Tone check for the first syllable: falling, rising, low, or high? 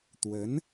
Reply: rising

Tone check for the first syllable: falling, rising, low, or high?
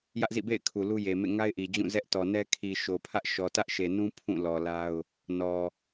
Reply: high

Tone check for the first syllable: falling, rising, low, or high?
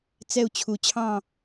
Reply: falling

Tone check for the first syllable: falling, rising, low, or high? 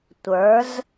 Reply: rising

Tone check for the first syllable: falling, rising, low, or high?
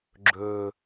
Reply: low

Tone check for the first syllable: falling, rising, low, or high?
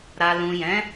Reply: low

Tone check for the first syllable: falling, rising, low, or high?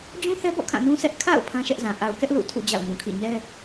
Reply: high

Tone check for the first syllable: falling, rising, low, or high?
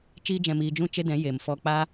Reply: high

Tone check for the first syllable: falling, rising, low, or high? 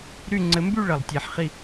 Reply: falling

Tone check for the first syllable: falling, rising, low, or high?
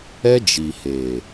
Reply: high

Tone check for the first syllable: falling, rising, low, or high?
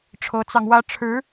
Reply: rising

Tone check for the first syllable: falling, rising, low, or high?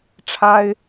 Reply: high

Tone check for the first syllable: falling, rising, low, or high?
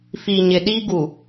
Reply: low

